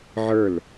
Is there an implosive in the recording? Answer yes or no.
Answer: no